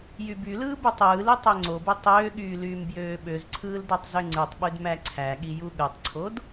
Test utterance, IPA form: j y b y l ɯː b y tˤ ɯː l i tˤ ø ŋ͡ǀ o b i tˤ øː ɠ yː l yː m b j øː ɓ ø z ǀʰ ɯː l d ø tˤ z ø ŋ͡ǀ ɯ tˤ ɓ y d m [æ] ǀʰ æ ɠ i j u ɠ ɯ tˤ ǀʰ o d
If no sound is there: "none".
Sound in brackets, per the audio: æ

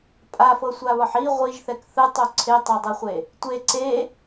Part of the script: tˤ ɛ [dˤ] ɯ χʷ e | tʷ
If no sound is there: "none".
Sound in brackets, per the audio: dˤ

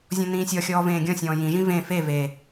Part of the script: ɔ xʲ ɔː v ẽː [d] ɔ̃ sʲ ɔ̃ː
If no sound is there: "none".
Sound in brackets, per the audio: ɡʲ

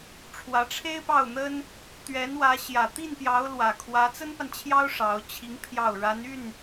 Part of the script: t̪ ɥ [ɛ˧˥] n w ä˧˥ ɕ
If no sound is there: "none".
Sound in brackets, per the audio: ɛ˧˥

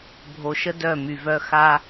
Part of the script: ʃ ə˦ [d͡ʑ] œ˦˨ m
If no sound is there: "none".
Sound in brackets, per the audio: d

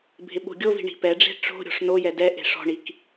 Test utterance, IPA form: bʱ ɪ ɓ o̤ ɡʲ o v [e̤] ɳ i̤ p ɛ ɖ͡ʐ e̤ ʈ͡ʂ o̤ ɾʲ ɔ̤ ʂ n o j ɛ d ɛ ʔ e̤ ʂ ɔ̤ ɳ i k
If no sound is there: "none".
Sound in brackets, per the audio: i̤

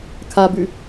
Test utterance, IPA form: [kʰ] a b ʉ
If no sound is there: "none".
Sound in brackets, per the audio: kʰ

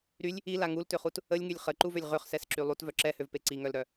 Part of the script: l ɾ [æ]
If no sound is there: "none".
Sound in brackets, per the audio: œ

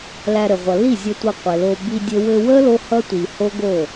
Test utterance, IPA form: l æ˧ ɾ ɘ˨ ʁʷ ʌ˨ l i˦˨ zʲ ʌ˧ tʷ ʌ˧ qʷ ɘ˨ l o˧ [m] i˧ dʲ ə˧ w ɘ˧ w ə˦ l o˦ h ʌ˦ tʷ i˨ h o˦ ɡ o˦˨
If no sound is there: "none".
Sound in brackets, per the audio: b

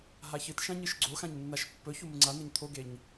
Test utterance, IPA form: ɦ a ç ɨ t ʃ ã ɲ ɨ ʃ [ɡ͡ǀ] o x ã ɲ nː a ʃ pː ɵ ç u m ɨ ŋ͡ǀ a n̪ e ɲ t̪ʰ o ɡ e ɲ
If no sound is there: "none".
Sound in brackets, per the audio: ɡ͡ǀ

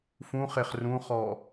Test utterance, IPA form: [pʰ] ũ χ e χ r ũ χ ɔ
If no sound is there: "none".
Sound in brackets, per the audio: f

